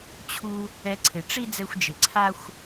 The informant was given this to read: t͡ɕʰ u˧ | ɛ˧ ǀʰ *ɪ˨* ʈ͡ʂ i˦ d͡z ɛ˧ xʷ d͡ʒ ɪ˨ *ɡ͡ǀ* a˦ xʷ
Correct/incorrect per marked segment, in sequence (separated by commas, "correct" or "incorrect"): correct, incorrect